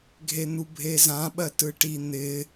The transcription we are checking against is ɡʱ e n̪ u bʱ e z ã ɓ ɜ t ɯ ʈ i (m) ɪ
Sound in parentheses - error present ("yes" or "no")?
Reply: yes